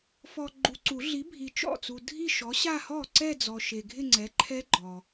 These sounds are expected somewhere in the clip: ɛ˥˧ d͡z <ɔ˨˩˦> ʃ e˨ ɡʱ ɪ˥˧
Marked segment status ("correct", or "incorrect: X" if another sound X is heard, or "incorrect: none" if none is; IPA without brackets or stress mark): incorrect: ɔ˨